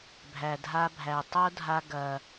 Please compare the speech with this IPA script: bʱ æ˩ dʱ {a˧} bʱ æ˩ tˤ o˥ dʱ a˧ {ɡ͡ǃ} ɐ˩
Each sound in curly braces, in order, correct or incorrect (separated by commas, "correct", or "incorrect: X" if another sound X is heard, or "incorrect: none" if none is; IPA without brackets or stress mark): correct, incorrect: ɡ